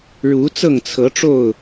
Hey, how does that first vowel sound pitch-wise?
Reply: rising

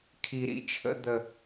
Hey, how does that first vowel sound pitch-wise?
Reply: low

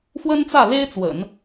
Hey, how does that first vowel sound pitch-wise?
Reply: high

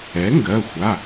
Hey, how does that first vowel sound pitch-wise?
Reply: rising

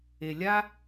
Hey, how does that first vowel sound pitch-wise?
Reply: low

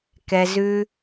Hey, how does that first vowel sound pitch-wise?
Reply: low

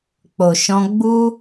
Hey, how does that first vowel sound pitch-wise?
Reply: low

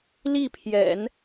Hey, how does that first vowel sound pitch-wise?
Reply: falling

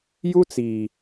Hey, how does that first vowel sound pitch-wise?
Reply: high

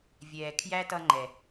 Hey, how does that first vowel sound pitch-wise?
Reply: low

